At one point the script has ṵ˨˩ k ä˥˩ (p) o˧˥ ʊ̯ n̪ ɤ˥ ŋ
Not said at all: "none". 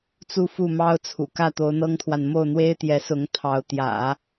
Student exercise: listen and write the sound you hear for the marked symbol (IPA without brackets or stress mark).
t̪